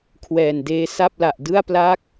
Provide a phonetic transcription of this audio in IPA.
kʰwɛː˨˩ndeː˦˥ sa˥˩p̚la˨˩ʔ dɯ˥˩a̯pla˥˩k̚

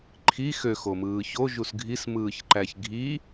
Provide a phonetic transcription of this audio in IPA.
ǃʰi xøxomɯː çoʒus ɡʱismɯːç ǃæçɡʱi

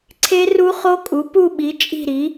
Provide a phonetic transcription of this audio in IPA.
ǀʰe˦˥ru˦˥χo˦˥kʼu˨˥ pu˥˨ɓi˨˥ t͡ʃʼi̤˥˨ɾi˨˥

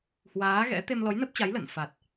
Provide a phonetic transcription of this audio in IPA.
hwaː˨˦ɣɛ̰˧˥ t̪e˧mlɔ˨˦jnə˦˥p̚t͡ɕa˨˦j lə̰˧˨n fa˨˩t̚

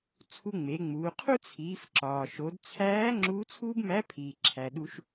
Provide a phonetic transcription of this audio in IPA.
t͡sʰu˧ŋ͡me˩˧ŋ͡muː˩˧ qʰu˥t͡sʰiː˩˧fǁɒː˩ ʃo˩˧dt͡sʰæː˧˥ ŋ͡ǁuː˧˥t͡sʰuː˥bmæ˧˥pʰiː˩ ǁʰæ˩ɗu˧ʃ

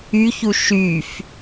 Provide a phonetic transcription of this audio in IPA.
yçu ʃyf

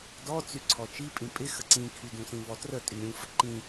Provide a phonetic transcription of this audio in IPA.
dɔ t͡syǀʰɔt͡ʃi pʼĩpʼɪ xəǀĩkʰy dũsĩvɔtrə tʼyɾʲũ fəǃĩ

